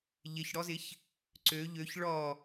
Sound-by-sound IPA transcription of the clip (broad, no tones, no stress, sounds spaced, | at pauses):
ʎ ɪ ç ɽ ɔ z ɪ ç | ǀ ø ʎ ø ç ɭ ɔ